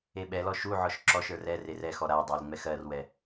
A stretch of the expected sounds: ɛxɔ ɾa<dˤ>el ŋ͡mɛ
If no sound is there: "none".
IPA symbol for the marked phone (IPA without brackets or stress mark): dˤ